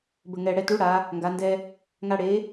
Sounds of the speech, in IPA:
bə˨˩ŋɛ˨˩ɽɛ˧ tu˨˥ɽa˩˧ | ŋɡa˩˧ndɛ˧ | ŋa˧ ɽe˨˥

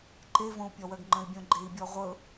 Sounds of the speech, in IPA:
ǃevõu̯pʲɒwɜɡ ŋ͡ǃə̃i̯bʲõɡ͡ǃei̯bʲɔ ʁʷɤ

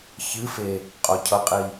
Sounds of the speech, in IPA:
çɨfe | qʼocʰʌqʼi

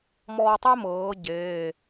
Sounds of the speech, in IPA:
mɔː˧tˤe˥mɤː˩˧ ɟeː˩˧˩

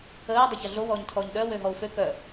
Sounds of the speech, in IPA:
əːu̯ dˤəçɐɮo wɔːɲtʰɔːɲɗœ wøɦɔu̯fø kœ

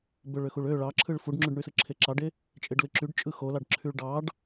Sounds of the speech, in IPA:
bøɭøxuɭø ɭɑǁʰɯɭ fuɖŋ͡ǁyɖɳysɯ ǁʰeǁɑɖe | t͡ʃʼeɖlɯǁyɖ t͡ʃʼɯxolɑɖ ǁʰyɭɖɑɖ

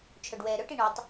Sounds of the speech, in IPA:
t͡ʃʰœɖwɛːɾœʈi ɳɔtˤ

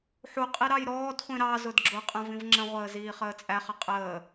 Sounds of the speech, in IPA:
ħuqʼi ɾɑjɾɔːdχʷĩ ɾɑzʊd ɡ͡ǁʊqʼə̃ vĩvŋ͡ǁə̃ʁʷəː ziːχəːt͡sʼæχə qʼəː

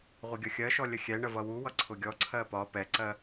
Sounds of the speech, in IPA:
ʁʷɪɡʲʌxʲɜʃɔ lʲəxʲɛɳə vʌwuwʌ ǀʰʊɡʲɔǀʰɜ pɒ pɛǀɜ

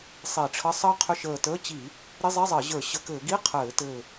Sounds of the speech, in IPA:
sˤi˧˩˧ʈ͡ʂʰə˧˥˧ sˤəː˦˥qʰʏ˧˥˧ʃəː˧˩təː˧˥˧ t͡ɕi˧˩˧ | ɾi˧˥˧zˤi˧˥˧zˤəː˧˩˧ʑə˞˧˩˧ ɕə˧˩˧kɘː˧˩˧ ɡi˧˥˧ qʰɘː˧˩˧tɘː˧˩

